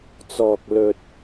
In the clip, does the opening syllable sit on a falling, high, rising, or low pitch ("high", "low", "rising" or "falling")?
low